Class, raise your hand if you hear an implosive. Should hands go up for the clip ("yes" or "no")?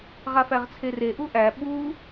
yes